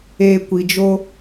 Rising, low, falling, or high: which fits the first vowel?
low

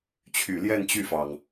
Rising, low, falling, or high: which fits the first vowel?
low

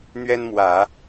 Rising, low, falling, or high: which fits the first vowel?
high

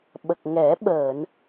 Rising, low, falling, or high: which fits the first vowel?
low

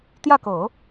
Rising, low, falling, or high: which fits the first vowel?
falling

